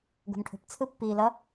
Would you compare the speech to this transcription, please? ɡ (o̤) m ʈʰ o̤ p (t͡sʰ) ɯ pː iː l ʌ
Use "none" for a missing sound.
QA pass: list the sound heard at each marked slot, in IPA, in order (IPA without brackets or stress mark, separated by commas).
o̤, t͡sʰ